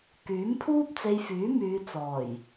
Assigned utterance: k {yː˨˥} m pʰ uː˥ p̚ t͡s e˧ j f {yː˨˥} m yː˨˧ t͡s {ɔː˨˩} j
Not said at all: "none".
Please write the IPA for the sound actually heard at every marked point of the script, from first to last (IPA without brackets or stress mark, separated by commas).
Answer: yː˨˥, yː˨˥, ɔː˨˩